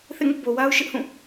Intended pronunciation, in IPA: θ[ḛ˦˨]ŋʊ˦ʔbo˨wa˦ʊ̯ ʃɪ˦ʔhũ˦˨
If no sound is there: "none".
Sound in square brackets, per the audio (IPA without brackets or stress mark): ḛ˦˨